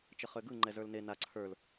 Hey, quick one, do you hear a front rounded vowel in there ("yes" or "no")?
yes